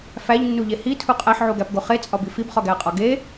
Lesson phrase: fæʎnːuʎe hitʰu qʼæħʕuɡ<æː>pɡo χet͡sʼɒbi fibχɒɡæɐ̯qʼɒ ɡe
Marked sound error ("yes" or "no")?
yes